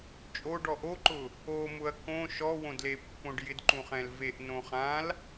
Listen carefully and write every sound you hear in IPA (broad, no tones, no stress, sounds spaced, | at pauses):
t͡ʃʼ o ɖ ɔ ʔ o ǃ ʊ | o m ʊ ɐ̯ k õ ʃ ɔ w õ d l e pː õ ɖ j ɪ d ǃ ũ χ ɛ̃ l v e ʔ n õ χ ã l